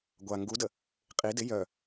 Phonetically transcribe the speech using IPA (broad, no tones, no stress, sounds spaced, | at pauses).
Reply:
ɡʷ a ŋ ɡ u d ə | qʼ i d ɪ j œ